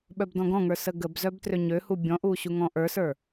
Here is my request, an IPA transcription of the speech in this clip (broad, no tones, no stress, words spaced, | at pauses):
ɓœbdɔ̃ɡɔ̃ŋə˞ səɡəbzœb trøɲøhu bʲɔ̃ʔu ɕuŋɔ̃ʔə˞sə˞